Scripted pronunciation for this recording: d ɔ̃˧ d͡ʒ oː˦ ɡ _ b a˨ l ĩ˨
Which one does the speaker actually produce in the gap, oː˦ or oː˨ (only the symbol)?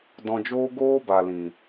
oː˦